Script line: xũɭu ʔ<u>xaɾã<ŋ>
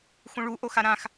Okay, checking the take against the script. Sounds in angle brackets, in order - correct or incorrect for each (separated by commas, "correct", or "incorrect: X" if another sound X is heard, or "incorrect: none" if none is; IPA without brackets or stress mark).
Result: incorrect: o, incorrect: x